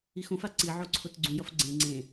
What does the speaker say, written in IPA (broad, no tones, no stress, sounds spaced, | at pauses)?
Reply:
i x õ f a ǀ i ʕ o ǀʰ o t ɡ͡ǀ ũ j ʌ f ɡ͡ǀ ẽ ŋ͡ǀ ẽ